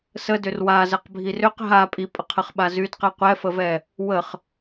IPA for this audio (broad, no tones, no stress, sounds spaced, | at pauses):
s ə d ʏ r w a z ə q bʱ i r ʏ q ɦ a pʼ i pʼ ə qʰ ə χ ɓ a z y d q ɛ qʷ ɛ f ə v ɛ | w ə χ